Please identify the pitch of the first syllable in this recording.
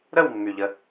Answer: falling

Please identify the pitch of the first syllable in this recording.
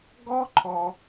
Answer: high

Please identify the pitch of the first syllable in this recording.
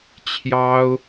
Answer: high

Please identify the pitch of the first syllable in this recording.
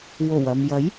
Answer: low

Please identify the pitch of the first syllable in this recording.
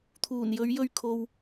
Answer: low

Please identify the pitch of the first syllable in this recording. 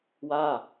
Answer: falling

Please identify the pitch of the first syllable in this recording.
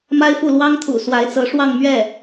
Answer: high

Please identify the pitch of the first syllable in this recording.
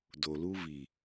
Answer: low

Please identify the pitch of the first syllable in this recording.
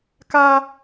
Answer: high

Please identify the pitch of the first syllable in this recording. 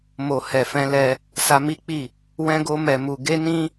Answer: low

